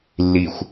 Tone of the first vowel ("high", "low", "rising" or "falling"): low